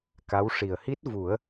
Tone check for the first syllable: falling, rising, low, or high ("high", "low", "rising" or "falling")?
rising